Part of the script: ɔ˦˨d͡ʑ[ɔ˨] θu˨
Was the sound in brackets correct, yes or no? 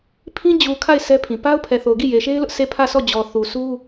yes